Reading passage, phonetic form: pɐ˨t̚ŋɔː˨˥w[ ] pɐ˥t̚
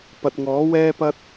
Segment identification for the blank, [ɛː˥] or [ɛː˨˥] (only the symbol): ɛː˥